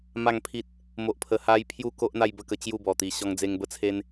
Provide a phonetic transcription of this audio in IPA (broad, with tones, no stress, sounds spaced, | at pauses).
m a˥˧ ŋ pʰ i˦ t̚ | m o˨ ʔ pʰ ə˨˩ h a˧ j pʰ j u˥˧ k o˦ ʔ n̪ a˥˧ j b ə˥˧ k ə˧ t͡ɕ j u˥˧ b ɔ˨˩ t̪ i˨˩ ɕ ɔ˧ ŋ d͡z e˧ ŋ b ə˥˧ t͡sʰ e˦ n